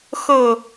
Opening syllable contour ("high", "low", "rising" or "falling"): falling